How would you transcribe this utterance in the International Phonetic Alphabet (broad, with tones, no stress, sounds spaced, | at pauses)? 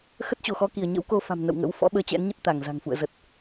x ə˦˥ t̚ t͡ɕ o˧˩ x ɔ˧ k i˧˩ ə̯ ɲ ə̰˧˥ w k o˧ f a̤˨˩ m n ə̰˧˨ w ŋ ə̰˧˥ w f ɔ̰˧˥ ɓ əː˧ t͡ɕ ɛ̰˧˥ n ɲ ə˦˥ t̚ t̪ a˧˩ ŋ z a̤˨˩ ŋ f ṵ˧˨ ə̯ z ə˨˩ t̚